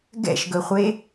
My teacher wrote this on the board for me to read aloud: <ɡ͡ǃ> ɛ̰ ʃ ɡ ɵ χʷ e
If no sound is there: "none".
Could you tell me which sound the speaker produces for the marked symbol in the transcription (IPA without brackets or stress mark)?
ɡ